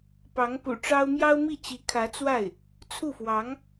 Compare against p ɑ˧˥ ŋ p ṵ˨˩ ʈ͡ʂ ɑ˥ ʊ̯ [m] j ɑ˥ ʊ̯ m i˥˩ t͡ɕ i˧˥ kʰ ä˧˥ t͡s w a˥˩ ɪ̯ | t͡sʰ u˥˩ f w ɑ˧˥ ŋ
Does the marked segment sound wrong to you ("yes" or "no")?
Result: no